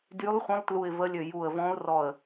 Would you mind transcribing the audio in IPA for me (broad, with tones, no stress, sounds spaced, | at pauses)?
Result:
d y˧˥ lˠ χʷ ə̃˧˥ lˠ t l u˧˩ ɪ̯ v ə˧˥ lʲ ø˧˩ j u˧˩ ə̯ v ɔ̃˧˥ ʊ̯ r ɔ˧˩ ə̯